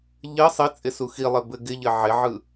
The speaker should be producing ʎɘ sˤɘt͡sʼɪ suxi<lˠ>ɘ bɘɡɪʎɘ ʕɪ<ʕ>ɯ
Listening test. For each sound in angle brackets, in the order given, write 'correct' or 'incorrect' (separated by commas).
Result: correct, correct